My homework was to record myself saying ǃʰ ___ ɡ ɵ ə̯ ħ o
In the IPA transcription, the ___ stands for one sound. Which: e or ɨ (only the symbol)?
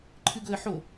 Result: ɨ